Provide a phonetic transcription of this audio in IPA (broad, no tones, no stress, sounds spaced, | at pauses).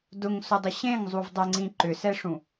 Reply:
d ʊ ŋ s ʊ dˤ ɪ ɕ ẽ ŋ zˤ u v dˤ ɛ ŋ͡ǀ ĩ ǃ ʏ s ɛ ʂ ũ